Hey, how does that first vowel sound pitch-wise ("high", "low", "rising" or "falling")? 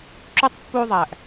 high